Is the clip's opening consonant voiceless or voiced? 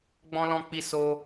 voiced